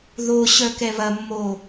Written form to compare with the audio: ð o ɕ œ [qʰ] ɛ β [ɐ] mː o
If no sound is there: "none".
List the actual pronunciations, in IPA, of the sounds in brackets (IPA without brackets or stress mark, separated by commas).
k, ɐ